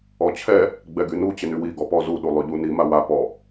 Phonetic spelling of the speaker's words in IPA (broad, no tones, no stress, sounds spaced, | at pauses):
ɔ t͡ɕʰ ɛ | ɡ͡b ɛ ɡ y n u t͡ɕ ɪ n y w i ɡ ɔ p ɔ z u ɗ u lˠ y ʎ u n i m a w a p ɔ